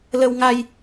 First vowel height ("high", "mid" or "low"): mid